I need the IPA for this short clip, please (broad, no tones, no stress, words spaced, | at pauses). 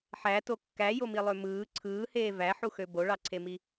ħæto kːæjomilˠø mɯː ǀʰɯːheː væħuxø boɭɑǀʰemi